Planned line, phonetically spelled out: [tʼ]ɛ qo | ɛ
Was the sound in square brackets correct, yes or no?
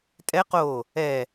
yes